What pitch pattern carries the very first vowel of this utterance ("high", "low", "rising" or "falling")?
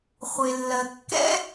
low